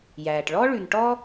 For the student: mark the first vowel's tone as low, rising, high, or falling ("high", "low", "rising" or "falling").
low